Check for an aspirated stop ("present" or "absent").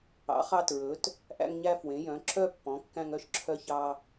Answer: present